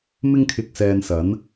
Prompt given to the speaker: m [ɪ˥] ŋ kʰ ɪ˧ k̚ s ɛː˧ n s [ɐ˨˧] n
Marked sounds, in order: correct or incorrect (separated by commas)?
correct, incorrect